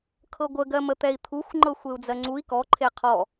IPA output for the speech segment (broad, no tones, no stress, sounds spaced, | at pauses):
kʰ ɤ ɡʷ ə ɡ ɜ m ə t̪ ɛ i̯ t̪ʰ u xʷ ŋ͡ǃ ɤ xʷ e u̯ d͡z ɜ ŋ͡ǀ u i̯ k ɔ ǃʰ e qʰ ɔ